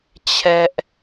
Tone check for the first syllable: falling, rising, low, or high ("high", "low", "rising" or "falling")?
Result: high